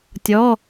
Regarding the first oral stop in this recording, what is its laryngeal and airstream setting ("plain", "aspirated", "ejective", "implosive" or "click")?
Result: plain